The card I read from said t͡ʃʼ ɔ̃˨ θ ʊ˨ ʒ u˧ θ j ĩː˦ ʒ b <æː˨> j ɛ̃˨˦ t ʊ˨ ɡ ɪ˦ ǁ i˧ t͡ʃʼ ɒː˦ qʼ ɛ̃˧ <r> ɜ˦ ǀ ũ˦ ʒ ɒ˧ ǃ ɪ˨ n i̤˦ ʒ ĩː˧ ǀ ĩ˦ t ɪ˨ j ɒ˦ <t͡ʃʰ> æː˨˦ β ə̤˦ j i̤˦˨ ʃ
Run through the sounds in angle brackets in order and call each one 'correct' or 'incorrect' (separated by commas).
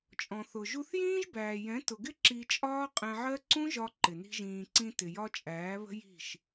correct, incorrect, incorrect